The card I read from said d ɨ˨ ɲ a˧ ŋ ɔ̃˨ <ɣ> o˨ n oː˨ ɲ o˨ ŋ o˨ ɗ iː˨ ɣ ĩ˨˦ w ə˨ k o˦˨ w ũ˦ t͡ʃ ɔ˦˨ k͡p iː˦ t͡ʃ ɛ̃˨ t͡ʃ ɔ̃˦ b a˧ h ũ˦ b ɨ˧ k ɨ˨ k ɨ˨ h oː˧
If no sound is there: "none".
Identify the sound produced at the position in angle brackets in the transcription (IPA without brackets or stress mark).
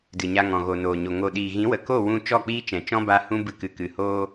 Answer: ɣ